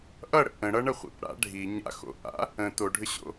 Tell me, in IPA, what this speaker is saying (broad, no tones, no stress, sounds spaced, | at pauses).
ʔ ʌ ɽ ə̰ ʔ ə̃ ɽ ʌ ɳ ə χʷ ḭ p ɽ a̰ ɖʱ i ɲ a̰ x o̰ ʔ a̰ | ə̃ t o ɖʱ ʏ ɕ o̰